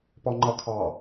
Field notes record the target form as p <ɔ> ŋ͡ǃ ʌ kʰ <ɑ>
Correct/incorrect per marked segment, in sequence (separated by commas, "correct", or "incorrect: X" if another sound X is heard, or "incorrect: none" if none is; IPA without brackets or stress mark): correct, correct